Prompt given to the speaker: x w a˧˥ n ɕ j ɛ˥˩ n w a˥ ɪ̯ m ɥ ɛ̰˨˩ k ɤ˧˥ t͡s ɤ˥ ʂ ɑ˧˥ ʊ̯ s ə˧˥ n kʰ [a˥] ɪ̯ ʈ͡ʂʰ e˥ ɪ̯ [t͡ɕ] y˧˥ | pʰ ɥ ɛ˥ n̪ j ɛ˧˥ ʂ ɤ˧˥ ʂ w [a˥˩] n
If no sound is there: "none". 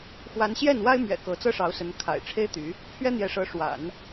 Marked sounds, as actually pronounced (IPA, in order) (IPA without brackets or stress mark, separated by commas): a̰˨˩, t̪, a̰˨˩˦